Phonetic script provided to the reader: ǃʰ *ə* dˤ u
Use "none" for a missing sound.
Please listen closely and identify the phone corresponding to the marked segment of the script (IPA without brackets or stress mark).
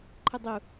ɯ